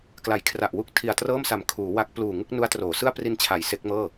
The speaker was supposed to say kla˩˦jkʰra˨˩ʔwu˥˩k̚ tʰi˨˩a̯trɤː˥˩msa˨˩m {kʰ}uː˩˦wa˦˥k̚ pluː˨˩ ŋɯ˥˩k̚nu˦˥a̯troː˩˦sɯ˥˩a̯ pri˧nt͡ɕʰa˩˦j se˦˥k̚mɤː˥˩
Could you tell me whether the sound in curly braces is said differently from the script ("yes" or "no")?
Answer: no